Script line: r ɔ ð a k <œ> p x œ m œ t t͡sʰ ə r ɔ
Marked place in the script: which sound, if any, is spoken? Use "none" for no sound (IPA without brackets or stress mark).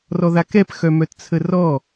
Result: ɛ